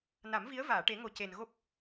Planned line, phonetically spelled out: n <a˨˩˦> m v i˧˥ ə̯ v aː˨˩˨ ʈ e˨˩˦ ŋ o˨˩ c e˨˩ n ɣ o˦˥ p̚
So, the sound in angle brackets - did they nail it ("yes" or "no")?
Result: yes